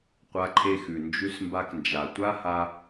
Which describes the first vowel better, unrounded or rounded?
unrounded